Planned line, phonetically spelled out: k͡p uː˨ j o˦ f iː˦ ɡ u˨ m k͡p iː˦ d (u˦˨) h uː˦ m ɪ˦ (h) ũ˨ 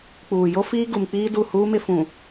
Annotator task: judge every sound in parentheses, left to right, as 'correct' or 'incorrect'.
correct, incorrect: f

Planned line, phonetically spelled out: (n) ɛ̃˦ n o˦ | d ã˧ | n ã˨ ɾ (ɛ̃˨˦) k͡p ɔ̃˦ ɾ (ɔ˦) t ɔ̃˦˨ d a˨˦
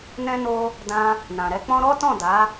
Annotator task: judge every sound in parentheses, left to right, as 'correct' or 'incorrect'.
correct, incorrect: ɛ˨˦, correct

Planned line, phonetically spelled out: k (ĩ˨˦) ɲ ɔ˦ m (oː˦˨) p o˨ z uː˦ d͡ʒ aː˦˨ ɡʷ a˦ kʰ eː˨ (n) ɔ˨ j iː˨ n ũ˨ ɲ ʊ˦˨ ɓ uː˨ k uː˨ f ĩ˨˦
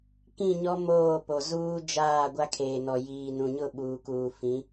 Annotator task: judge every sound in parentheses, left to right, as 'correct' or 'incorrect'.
incorrect: ĩ˦˨, correct, correct

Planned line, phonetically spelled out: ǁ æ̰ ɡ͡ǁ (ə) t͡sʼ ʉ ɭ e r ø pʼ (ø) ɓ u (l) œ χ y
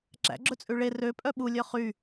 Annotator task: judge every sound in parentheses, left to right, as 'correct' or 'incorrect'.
incorrect: ɵ, incorrect: œ, incorrect: lʲ

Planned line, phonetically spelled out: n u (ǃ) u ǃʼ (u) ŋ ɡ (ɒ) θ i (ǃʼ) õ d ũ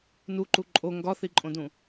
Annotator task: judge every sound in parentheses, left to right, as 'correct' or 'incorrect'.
correct, incorrect: o, correct, correct

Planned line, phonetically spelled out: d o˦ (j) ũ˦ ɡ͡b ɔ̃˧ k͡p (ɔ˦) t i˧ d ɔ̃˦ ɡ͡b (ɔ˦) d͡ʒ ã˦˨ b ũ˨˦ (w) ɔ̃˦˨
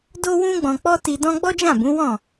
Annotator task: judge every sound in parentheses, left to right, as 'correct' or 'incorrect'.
incorrect: w, correct, correct, correct

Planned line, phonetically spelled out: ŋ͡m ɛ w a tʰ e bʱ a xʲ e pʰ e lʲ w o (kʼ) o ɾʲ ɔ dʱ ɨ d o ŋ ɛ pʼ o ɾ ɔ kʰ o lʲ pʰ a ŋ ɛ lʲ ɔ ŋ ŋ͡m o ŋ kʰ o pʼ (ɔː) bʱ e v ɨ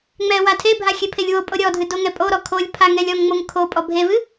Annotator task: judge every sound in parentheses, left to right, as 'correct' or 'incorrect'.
incorrect: pʼ, incorrect: ɔ

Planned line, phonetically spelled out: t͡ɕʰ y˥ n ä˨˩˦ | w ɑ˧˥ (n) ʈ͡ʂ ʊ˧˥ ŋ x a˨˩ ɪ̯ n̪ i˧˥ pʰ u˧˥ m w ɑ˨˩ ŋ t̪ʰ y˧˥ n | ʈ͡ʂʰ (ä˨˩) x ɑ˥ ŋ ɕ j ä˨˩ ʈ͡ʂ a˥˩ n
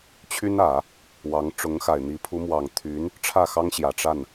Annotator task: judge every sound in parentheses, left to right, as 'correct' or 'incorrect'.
incorrect: ŋ, incorrect: ä˥˩

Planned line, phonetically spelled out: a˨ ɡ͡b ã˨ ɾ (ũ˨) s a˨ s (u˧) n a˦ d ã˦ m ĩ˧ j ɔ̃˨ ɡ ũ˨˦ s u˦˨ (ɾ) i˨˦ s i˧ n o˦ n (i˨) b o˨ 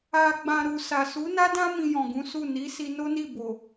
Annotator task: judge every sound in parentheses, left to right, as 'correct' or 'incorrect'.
incorrect: u˨, incorrect: u˨˦, incorrect: n, incorrect: i˦˨

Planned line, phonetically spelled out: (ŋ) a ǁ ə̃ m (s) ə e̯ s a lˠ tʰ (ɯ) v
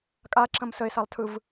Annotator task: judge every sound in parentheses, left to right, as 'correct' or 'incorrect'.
incorrect: kʼ, correct, correct

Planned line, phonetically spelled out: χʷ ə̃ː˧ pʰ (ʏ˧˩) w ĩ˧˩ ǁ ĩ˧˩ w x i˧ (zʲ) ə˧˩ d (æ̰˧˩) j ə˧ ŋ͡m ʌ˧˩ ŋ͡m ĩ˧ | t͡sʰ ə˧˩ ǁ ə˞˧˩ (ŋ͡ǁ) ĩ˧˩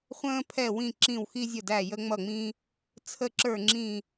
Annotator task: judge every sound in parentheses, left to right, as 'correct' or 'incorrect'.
incorrect: ɛ˧˩, correct, incorrect: æ˧˩, correct

